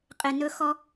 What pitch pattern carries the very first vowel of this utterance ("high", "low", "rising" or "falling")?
low